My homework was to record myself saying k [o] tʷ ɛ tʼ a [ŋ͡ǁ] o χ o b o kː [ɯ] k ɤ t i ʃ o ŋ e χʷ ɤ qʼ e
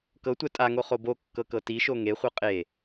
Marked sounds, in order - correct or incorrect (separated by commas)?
incorrect, incorrect, incorrect